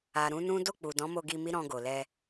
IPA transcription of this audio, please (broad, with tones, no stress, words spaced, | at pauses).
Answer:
a˨ɾũ˨˦nũ˦ do˦˨k͡pu˨dɔ̃˨˦mo˧ ɡi˧mi˦ ɾɔ̃˧ɡo˨lɛ˧